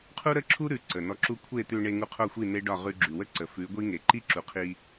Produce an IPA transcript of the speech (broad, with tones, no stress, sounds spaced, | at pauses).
qʰ u˦ ɾ ə˦ ǁʰ u˦ ɾ ʉ˨˦ ǀ ə˨ n ɔ˧ ǁ u˦ kʷʰ e˦˨ t̪ ʉ˧ ɳ e˧ ŋ u˧ qʰ o˦˨ xʷ i˦˨ n e˦ ɖ ɒ˦˨ ʁ ʉ˧ ɡ͡ǁ ʉ˨ w ə˦ ǀ ə˨ f ʉ˨˦ ɡʷ i˦ ŋ e˨ ǃ i˦ ǁ u˨ qʰ i˧